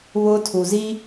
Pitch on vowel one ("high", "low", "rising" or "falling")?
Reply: high